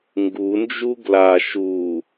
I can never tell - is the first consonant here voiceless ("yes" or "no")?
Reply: no